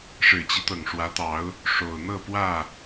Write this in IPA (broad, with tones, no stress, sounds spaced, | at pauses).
ʂ ɻ̩˨˩ t͡ɕ i˦ t̪ ɤ˨˩ ŋ ʂ w ä˨˦ t̪ ɑ˨˦ ʊ̯ | ʂ o˨˩ ʊ̯ n̪ ɤ˥˨ p w ä˥˨